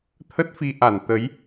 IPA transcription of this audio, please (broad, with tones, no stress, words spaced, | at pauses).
t̪ʰə˦˥t̚fi˧ ʔa˧˩n t̪ə˨˦j